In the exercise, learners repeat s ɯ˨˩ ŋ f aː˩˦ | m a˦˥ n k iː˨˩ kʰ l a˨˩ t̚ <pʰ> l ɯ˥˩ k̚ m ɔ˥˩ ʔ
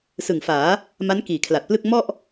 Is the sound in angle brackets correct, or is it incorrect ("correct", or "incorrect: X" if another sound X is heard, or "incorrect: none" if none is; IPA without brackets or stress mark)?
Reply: incorrect: p